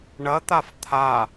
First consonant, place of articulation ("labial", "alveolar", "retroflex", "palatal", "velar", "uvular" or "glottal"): retroflex